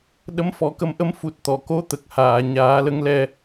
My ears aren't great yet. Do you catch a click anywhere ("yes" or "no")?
no